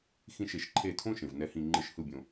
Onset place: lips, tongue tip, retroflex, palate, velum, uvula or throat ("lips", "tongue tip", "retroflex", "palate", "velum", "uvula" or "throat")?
velum